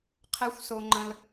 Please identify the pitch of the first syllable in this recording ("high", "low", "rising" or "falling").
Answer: high